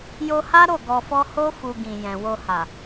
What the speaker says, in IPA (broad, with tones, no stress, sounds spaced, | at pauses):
j o˧ h a˦ ɾ o˦˨ ɡ ɔ˧ f ɔ˦ h o˦ f u˧ ɡ ĩ˨ j ɛ̃˨ w o˧ h a˨